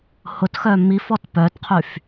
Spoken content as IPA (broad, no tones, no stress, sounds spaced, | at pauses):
h ʊ t x œ m i f ɔ t p œ t qʰ y f